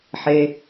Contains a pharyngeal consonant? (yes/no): yes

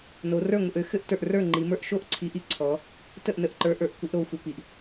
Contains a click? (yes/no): yes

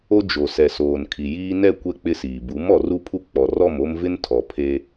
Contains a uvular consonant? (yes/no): no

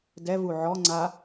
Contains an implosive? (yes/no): no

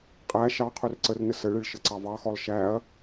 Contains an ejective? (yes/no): yes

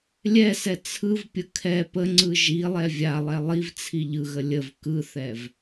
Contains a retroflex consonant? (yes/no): no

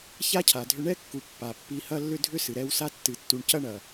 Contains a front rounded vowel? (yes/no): yes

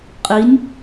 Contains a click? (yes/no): no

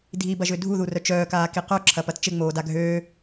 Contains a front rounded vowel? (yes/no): yes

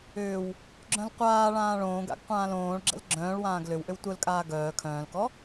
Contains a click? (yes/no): yes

